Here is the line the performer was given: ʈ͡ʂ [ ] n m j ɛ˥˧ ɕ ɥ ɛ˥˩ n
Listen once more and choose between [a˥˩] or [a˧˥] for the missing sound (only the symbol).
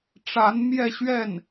a˧˥